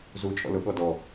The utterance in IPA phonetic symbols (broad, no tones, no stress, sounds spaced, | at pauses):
z u t͡ʃʼ ɔ̰ l ʊ ɠ ɔ d ɔ